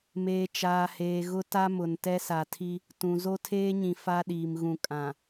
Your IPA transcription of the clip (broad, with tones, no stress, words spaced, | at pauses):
meː˨ t͡ʃaː˨heː˨ɣʊ˦ ta˦mʊ˨n tɛ˦sa˨tʰi˦ | tũ˨ zo˦tʰeː˦ɲĩ˨ fa˦ɗiː˨m ɣũ˨ kʼã˨